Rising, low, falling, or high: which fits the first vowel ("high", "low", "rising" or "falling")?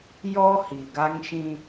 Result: high